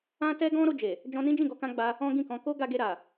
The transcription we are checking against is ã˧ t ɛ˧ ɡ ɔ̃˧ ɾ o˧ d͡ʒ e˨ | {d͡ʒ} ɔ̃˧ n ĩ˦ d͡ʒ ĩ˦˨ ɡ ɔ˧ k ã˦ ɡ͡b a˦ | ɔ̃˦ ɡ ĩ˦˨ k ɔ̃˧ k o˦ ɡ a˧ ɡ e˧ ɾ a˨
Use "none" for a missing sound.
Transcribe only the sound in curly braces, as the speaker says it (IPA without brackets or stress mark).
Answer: d͡ʒ